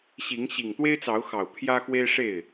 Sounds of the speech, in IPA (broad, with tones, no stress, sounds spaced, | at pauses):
ɕ i˨˦ ŋ ɕ i˨˩ ŋ t̪ w e˦ ɪ̯ t͡s ɑ˨˦ ʊ̯ x ɑ˨˩ ʊ̯ pʰ j ä˦ x w e˦ ɪ̯ ʂ e˥˨ ɪ̯